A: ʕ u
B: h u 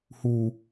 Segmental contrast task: B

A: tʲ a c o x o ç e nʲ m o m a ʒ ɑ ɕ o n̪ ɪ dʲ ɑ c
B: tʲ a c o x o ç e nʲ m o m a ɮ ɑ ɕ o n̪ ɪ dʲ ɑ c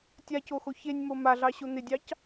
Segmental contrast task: B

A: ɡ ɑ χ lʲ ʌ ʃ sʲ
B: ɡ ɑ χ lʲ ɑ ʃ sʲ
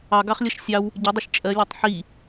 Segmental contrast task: A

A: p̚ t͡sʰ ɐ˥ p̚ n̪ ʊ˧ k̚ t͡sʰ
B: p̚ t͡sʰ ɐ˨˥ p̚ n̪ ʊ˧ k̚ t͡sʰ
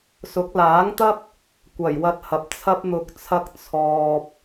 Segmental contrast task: A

